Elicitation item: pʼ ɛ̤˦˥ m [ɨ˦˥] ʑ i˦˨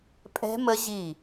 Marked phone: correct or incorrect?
incorrect